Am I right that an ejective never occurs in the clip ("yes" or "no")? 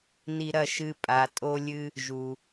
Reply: no